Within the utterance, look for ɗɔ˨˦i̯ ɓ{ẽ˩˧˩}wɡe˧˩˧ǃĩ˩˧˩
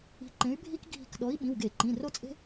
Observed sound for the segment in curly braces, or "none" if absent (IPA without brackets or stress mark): ĩ˩˧˩